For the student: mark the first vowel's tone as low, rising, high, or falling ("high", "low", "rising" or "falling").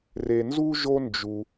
low